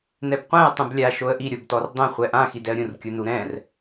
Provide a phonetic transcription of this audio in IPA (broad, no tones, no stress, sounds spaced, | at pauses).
n ɛ b qʷ ɛ̃ ə̯ tˤ ũ b lʲ a ʃ o ə̯ ʔ i ɾʲ o b t ɔ r dˤ ɛ̃ χʷ ɛ ʔ ã x i d ɛ ə̯ ɾʲ ũ r kʲ u n u ɾ ɛ̃ r